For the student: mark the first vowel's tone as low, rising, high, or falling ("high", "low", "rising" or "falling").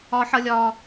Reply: high